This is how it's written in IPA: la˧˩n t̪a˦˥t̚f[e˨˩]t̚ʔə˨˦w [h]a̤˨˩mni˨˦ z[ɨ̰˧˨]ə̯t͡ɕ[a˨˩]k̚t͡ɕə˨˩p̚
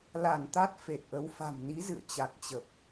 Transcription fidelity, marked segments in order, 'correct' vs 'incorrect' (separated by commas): correct, incorrect, correct, correct